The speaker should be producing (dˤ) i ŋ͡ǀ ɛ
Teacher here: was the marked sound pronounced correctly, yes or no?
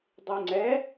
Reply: yes